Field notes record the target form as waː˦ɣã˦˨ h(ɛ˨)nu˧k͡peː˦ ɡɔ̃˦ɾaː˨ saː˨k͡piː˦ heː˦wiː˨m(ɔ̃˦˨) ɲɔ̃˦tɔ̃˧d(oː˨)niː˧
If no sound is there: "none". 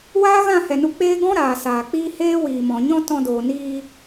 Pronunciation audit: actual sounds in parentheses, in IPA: ɛ˨, ɔ̃˨, oː˨

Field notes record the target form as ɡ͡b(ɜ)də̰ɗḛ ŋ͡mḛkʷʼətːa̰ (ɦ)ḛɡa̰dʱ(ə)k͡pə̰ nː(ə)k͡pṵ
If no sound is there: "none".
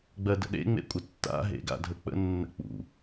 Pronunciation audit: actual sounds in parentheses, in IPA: ɜ, ɦ, ə, ə̰

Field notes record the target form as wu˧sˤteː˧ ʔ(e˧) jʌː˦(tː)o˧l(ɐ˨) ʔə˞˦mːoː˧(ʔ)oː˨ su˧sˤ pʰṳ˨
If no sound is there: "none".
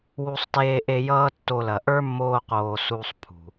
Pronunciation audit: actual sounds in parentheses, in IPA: e˧, tː, ɐ˨, q

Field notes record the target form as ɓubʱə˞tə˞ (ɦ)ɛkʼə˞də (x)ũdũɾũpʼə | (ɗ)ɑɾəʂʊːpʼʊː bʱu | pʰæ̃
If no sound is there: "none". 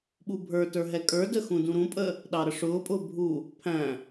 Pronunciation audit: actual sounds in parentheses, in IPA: ɦ, x, ɗ

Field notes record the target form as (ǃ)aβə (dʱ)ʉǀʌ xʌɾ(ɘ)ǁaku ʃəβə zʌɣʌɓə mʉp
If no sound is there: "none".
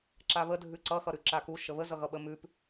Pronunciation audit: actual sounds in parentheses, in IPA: ǁ, dʱ, ʉ

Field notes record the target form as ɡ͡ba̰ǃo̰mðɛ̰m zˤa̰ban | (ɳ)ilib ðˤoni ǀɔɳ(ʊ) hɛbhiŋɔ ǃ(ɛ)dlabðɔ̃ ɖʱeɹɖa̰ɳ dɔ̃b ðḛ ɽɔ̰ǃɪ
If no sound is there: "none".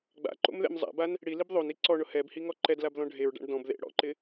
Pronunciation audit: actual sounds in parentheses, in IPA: ɽ, ʊ, ɛ

